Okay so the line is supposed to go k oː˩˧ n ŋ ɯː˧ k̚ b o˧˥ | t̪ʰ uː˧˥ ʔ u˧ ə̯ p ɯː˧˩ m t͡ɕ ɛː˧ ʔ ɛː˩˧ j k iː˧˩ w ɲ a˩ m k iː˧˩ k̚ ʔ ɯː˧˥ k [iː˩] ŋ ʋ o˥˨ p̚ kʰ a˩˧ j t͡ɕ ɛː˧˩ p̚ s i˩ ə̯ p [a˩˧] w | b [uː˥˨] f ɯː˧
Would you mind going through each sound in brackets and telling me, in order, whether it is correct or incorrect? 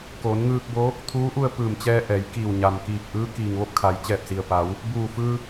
correct, correct, incorrect: uː˧˩

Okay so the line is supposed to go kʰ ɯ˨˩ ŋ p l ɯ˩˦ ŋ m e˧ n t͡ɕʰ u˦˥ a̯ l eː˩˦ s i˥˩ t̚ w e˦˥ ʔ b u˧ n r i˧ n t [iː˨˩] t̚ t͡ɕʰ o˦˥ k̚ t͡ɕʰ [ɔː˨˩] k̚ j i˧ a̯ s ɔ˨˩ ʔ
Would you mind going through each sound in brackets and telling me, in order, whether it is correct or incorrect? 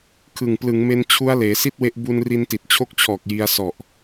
incorrect: i˨˩, correct

